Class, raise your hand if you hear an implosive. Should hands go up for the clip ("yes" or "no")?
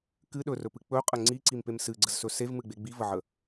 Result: yes